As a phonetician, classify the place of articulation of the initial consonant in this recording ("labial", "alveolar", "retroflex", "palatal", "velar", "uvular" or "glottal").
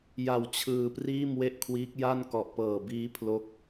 palatal